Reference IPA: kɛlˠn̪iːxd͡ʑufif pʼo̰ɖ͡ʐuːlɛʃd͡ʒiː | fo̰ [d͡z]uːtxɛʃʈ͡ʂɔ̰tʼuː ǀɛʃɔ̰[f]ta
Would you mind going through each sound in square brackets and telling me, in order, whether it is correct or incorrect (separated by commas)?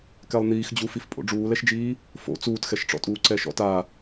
incorrect, incorrect